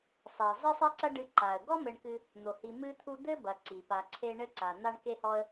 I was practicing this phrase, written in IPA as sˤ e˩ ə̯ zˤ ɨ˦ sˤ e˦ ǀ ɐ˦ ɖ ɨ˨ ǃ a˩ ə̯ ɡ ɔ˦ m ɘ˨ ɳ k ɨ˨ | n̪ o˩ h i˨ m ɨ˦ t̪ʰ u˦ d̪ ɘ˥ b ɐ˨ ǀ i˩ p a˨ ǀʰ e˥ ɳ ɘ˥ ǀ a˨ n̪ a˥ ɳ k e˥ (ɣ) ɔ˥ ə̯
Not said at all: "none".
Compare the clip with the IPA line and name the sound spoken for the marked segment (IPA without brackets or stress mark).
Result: h